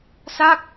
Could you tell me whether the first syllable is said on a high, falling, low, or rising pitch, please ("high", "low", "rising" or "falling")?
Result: falling